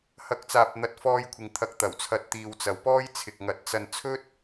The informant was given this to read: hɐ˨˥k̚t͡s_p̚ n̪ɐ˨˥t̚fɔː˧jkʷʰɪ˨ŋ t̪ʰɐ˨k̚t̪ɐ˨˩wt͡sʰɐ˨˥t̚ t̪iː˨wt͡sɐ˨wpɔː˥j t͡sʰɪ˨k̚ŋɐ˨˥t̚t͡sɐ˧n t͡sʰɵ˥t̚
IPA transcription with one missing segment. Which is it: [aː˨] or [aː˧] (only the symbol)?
aː˨